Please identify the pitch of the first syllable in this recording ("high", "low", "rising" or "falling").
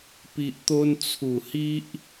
low